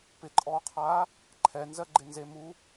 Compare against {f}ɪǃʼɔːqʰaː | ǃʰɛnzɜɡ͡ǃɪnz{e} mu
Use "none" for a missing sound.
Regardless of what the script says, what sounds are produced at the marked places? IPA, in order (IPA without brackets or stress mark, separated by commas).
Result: p, e